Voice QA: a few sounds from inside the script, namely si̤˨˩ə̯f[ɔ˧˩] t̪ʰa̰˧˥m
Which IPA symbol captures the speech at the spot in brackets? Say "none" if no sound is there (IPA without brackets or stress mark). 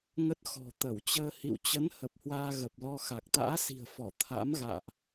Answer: ɔ˧˩